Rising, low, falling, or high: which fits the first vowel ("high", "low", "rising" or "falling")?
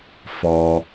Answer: high